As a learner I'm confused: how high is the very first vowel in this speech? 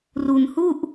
high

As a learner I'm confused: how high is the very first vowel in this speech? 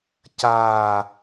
low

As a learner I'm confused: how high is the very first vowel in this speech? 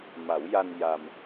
low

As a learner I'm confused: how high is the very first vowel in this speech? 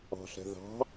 low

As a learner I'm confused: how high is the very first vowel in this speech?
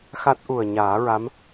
low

